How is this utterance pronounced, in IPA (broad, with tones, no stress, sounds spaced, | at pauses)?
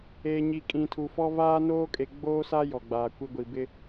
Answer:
eː˨ ɲ i˨ kʼ ĩ˨ tʰ u˨ f ɔ˦ v aː˦ n oː˦ kʼ e˨ ɡ͡b oː˦ s a˦ j ɔ˨ ɡ͡b aː˨ kʷ i˦ ɡʷ i˨ b ɪ˦